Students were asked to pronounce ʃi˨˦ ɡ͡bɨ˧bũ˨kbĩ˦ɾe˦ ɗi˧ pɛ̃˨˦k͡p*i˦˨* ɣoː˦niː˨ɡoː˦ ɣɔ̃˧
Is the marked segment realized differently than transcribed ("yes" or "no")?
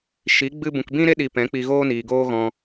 yes